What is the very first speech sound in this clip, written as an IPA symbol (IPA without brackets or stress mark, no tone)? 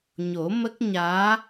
ɲ